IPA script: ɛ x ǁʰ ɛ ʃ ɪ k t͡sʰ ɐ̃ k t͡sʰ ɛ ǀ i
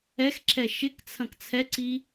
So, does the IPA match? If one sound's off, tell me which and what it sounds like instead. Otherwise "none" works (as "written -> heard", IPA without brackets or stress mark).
none